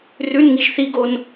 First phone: r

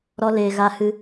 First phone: ɾ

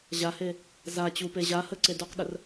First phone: ʑ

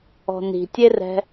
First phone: ɔ̤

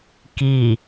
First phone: k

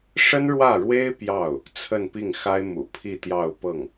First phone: ʂ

